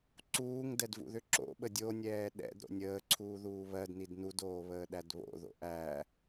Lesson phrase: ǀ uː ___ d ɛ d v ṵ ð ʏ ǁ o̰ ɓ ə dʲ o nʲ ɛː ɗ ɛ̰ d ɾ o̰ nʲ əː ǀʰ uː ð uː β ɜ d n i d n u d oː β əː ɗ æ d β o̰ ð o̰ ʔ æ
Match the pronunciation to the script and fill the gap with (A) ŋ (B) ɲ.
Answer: A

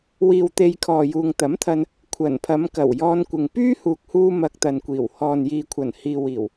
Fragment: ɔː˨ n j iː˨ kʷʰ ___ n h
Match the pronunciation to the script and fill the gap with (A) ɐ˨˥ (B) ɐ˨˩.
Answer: B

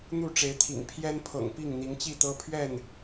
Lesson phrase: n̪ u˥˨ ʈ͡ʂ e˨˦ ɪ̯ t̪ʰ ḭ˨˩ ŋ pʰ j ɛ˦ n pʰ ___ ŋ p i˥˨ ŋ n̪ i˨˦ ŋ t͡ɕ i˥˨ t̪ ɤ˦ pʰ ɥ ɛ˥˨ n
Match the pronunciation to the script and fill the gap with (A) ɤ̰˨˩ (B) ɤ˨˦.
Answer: A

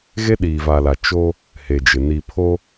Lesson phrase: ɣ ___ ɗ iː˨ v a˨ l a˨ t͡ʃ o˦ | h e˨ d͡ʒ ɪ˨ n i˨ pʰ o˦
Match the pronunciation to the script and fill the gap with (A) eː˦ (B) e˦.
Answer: B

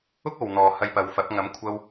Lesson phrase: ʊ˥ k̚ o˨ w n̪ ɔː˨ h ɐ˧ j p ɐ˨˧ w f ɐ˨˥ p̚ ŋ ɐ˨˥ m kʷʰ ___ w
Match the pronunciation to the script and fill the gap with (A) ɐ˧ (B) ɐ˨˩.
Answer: A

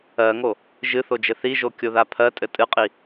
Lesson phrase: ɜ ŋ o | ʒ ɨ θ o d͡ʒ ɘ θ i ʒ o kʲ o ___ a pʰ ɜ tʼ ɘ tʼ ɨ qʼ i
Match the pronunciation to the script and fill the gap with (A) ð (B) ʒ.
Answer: A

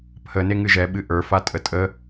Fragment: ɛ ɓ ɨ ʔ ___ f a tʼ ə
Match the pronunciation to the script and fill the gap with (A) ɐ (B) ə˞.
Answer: B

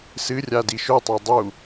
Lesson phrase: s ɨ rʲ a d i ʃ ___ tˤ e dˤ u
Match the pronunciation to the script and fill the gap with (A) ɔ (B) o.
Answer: B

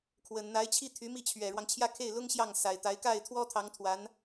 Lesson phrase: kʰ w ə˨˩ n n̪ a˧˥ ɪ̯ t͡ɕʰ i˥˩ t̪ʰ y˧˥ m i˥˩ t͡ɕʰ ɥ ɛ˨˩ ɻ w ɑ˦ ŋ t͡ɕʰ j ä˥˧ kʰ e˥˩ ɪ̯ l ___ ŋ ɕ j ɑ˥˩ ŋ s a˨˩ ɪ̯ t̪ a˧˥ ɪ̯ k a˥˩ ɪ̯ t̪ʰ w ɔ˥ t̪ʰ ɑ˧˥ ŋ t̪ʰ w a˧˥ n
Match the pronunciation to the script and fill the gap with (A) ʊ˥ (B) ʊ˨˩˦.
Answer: A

